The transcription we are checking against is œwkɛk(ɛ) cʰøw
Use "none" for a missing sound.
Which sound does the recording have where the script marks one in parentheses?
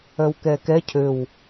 ɛ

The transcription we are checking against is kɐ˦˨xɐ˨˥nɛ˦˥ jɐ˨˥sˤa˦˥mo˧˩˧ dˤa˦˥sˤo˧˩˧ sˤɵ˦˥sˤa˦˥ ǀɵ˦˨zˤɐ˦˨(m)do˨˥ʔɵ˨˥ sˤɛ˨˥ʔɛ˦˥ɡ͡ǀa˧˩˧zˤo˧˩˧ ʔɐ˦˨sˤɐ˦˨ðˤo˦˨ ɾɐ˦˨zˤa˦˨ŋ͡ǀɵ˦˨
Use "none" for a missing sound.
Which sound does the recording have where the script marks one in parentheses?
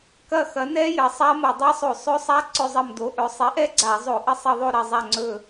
m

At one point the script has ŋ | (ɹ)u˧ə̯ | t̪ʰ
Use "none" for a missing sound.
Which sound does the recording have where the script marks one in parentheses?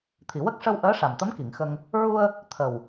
ɹ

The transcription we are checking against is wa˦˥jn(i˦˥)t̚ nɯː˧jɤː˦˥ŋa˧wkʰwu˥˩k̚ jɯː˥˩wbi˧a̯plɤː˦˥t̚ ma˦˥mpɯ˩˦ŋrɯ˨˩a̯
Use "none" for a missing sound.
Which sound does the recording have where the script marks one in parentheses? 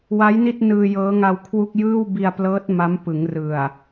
i˥˩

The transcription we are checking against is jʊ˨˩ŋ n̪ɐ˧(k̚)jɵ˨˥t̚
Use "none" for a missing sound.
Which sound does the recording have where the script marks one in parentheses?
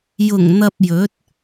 p̚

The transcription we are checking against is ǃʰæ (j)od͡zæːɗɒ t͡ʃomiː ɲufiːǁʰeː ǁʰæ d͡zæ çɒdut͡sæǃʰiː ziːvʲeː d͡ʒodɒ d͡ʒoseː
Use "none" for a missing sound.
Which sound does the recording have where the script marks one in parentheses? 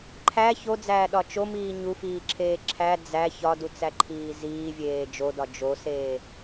ç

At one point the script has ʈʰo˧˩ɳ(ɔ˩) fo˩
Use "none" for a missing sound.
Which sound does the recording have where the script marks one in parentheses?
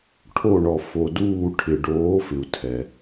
ɔ˩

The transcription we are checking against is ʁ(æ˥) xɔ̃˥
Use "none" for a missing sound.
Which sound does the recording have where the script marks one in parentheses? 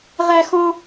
æ˥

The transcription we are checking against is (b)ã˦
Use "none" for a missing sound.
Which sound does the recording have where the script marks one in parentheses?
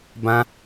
b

